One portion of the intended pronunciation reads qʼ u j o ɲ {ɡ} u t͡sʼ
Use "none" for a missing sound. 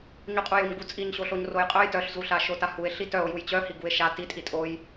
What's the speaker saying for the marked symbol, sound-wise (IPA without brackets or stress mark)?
ɡ